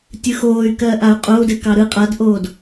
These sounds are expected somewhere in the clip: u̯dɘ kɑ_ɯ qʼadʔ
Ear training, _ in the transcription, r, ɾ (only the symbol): ɾ